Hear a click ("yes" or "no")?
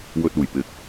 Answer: no